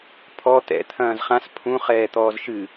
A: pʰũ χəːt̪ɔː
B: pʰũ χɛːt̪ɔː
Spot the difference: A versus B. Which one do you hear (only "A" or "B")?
B